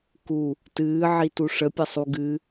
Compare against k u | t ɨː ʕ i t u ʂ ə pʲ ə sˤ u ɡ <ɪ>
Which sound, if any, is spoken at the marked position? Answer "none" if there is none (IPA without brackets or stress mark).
ɨ